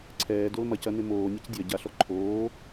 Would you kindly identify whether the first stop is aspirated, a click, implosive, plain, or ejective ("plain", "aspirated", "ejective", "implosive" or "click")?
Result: click